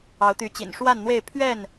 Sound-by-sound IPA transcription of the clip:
ɑ˨˦ ʊ̯ t̪ y˨˦ t͡ɕ ḭ˨˩ n ʂ w a˥˨ n n̪ w e˥˨ ɪ̯ pʰ ɥ ɛ˥˨ n

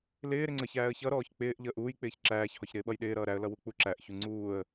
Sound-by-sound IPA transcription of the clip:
l ɪː ɾ ɪ ŋ͡ǀ ə ç æː ə̯ ç ʌ ɾ ɔː ç k͡p ɪː ʔ ʎ əː ʔ uː j k͡p ɪː ç ǁ æː ç h ɔ ç ɾ ɪː ɓ ʌ j ɗ ɪː ɾ ʌː ɾ æ ə̯ l ʌ w u k͡p u ǁ æ ʔ ç u ŋ͡ǀ uː ə̯

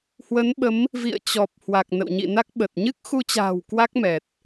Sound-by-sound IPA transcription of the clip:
h w ə˨˦ n ɓ ə˨˦ m | v ḭ˧˨ ə̯ t͡ɕ ɔ˨˩ p̚ h w a˨˩ k̚ n ə̰˧˨ w ɲ ḭ˧˨ n a˦˥ k̚ ɓ ə˨˩ t̚ ɲ ɨ˦˥ k̚ x u˧ t͡ɕ a̤ː˨˩ w k w a˦˥ k̚ m ɛ˨˩ t̚

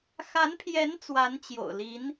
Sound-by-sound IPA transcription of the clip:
x a˧˥ n pʰ j ɛ˧˥ n t͡s w a˧˥ n t͡ɕ j o̰˨˩ ʊ̯ l i˧˥ n

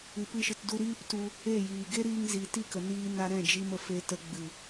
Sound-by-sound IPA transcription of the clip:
ɨ˨ p ɨ˧ ʃ ɨ˨ t d u˧ ɾ iː˦ p t u˧ | e˦˨ j iː˨ ɡ e˦ ɾ iː˧ ŋ z i˨ t i˦˨ k ə˨ n iː˧ n a˧ ɾ ɛ̃˦˨ d͡ʒ i˧ m ə˨ f e˧ t ə˧ ɡ͡b ɨ˨

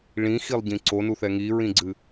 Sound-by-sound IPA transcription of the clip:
ɭ ĩ x i lˠ ɟ ĩ ǀ o n u θ ɛ ŋ i ɹ ĩ ɡ͡ǀ ɨ

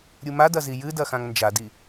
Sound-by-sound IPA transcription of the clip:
ɾʲ u m a d ɐ z i j ɨ d ɐ x ã ŋ n d͡ʒ a d i

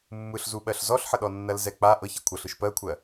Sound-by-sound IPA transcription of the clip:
mː ɯ ɬ z u ɓ ɜ ɬ z ɔ ɬ ħ ə ɗ ɔ nː ɐ l z ɛ k͡p a ʔ ɤ ç ɐ kʷʰ ɤ ɬ ɯ ʃ p ɜ kʷʰ ɜ

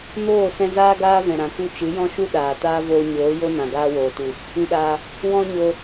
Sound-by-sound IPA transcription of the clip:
n oː˦˨ s ɛ̃˧ z aː˦ ɡ aː˦ v ɛ̃˨ ɾ ã˨ k u˧ t͡ʃ ɨ˨˦ j ɔ̃˦ ʃ u˦ ɗ aː˨ t aː˦ v oː˧ ɲ oː˨˦ j o˦ n ã˨ ɡ aː˦ w oː˨ t u˨ | ĩ˧ ɗ aː˧ | w ɔ̃˦ ɲ o˧

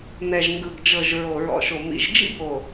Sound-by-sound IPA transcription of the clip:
n̪ ɛ˨ ʒ ŋ ɡ ɯ˨ ɡ d͡ʒ ɤ˨ ʒ ɹ o˨ ɹ ɔ̰˨ ʃ o˨ m ḭ˨ ʒ d͡ʒ ḭ˦ b o˨

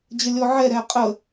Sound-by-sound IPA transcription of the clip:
d͡ʑ ə lʲ ɔ ʕ ɛ ɾ ɛ qʼ ə

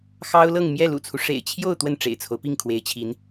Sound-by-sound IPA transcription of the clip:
x ɑ˥ ʊ̯ l ɤ˥˧ ŋ m j ɛ˥˩ l ṵ˨˩ t͡sʰ u˦ ʂ ḛ˨˩ ɪ̯ t͡ɕʰ j o˥˧ ʊ̯ t̪ w ə˥˩ n ʈ͡ʂ ḛ˨˩ ɪ̯ t͡sʰ o˦ ʊ̯ p i˥˩ ŋ kʰ w e˧˥ ɪ̯ t͡ɕʰ i˧˥ n

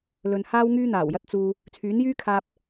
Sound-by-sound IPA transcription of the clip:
l ɵ˨ n h aː˥ w ŋ yː˥ n̪ aː˨˩ w j ɐ˥ t̚ t͡s uː˧ | t͡sʰ yː˨˥ n j yː˥ kʰ aː˧ p̚

